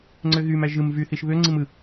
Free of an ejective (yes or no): yes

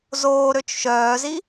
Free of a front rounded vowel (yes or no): no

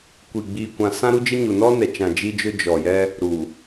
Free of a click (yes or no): yes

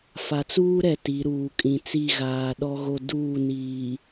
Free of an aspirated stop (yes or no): yes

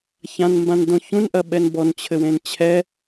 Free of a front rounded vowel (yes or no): yes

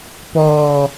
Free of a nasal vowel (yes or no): yes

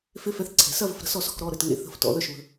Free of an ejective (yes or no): yes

